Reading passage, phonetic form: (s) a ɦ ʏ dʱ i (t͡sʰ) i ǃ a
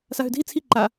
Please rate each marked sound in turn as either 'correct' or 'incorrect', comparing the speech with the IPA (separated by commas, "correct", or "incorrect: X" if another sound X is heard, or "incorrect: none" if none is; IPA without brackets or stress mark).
correct, correct